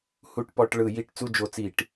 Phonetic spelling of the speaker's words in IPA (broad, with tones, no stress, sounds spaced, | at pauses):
h u˧˩˧ ʈ p ɔ˧˩˧ ʈ ɭ ɯ˧˩˧ j i˧˩˧ ʈ t͡s u˦˨ d͡ʒ o˧˩˧ t͡s i˧˩˧ ʈ